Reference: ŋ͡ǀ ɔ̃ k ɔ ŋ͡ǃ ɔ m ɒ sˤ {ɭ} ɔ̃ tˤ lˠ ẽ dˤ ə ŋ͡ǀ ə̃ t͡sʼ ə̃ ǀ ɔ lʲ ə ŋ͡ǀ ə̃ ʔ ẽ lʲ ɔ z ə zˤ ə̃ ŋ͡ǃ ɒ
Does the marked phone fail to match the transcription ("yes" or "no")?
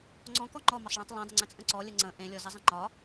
no